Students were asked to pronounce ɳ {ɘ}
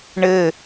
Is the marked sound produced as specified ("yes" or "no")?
yes